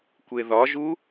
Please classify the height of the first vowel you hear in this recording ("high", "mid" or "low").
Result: mid